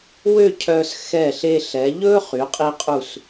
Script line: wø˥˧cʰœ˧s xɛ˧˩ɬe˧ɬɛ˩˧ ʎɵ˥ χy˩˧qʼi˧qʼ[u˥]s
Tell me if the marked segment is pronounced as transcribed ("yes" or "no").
no